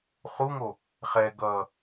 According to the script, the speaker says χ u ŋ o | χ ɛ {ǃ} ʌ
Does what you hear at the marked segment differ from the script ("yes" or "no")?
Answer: yes